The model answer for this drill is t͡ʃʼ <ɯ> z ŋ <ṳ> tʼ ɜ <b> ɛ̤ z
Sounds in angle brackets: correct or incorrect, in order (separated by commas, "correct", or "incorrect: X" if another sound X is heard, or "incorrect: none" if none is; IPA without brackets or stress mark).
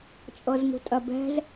incorrect: ɤ, correct, correct